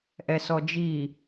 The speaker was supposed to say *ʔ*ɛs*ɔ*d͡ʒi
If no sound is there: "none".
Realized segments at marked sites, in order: ʔ, ɔ

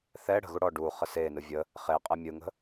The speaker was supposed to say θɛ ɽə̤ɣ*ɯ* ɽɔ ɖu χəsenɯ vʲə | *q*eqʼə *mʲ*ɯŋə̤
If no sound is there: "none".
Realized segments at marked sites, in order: u, χ, mʲ

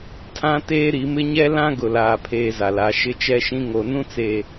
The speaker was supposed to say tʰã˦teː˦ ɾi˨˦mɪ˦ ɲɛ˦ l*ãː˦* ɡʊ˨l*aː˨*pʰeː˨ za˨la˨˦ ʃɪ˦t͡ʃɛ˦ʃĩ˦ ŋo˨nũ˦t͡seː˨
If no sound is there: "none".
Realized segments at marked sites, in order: ã˦, aː˨

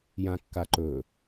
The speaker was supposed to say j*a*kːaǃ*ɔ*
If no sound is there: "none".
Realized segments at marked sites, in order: ã, ɵ

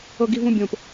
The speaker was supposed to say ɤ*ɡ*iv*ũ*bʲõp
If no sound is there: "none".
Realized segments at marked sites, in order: ɡ, ũ

